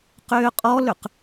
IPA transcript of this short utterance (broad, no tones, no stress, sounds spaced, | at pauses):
q ʏː qʼ ɔ l ʏ q